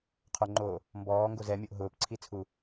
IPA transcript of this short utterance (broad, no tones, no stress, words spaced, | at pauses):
qʰoŋ͡ǃoː | mbɔːŋɡo zɛmʲoʔ ɦʊːpǀʰit͡sʰu